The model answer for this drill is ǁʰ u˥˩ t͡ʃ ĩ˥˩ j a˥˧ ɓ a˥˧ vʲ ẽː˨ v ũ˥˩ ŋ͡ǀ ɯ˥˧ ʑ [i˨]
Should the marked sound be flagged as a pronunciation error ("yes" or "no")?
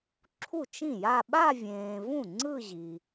no